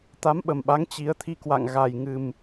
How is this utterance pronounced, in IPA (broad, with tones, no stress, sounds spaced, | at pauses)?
t̪ a˨˦ m ɓ ə˨˩ m ɓ a˨˦ ŋ t͡ɕ i˨˦ ə̯ t̪ʰ i˧ k w a̰˧˨ ŋ ɣ a˨˩ j ŋ ɨ˨˩ m